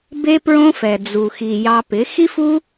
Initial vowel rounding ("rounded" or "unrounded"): unrounded